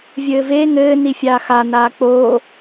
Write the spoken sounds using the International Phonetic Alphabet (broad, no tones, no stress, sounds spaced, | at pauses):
vʲ ɘː v e ŋ ɘː n i fʲ aː x a n aː k͡p oː